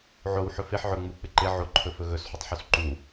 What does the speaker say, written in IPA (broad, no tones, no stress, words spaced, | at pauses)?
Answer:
ʕow ħɵfɪħ ʕɵ ŋ͡mu k͡pɪǃɪ ʕoǃʰɵ fɵɣɵsħutˤħus ǃu